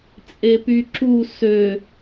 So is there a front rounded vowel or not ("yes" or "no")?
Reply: yes